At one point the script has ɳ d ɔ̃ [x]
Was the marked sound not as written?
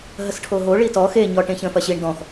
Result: no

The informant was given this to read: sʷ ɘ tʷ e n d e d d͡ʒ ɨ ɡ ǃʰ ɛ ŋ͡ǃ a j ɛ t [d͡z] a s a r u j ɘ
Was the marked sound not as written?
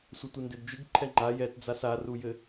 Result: no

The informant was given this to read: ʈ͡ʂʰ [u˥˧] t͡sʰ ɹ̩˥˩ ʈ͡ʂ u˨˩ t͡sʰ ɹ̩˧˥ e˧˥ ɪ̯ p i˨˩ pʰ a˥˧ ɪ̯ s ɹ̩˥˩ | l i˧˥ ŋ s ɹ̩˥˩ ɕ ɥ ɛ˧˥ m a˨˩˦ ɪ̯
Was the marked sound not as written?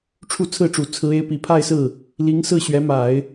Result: no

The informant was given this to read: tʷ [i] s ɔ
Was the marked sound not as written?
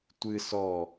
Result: yes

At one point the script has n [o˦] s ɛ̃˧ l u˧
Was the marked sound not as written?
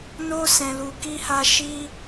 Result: no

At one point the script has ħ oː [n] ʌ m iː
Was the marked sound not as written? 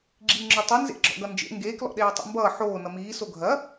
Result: no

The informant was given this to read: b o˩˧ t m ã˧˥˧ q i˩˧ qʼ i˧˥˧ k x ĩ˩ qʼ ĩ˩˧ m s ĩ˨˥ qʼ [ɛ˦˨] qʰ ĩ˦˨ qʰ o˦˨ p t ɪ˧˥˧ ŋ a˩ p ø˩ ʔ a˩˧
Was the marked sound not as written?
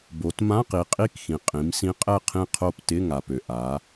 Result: no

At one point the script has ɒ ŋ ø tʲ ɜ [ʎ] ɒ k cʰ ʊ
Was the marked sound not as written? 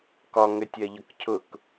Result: no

